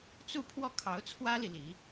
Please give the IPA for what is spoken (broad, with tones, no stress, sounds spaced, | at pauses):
t͡s u˥˧ pʰ w ɔ˥˩ kʰ ɑ˧˥ ʊ̯ t͡sʰ w ä˥ l i˨ l i˧˥